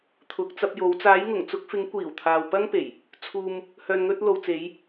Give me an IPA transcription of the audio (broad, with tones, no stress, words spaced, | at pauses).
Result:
t̪ʰʊ˨k̚t͡sɐ˧p̚jo˨˧w t͡saː˨˧jŋʊ˨˩ŋt͡sʊ˧k̚fɪ˨˧ŋ kʷiː˨˩wt̪ʰaː˨wpɐ˥ŋpe˨˩j | t͡sʰuː˧m | hœː˨nŋɵ˧t̚lo˨wt͡se˨˧j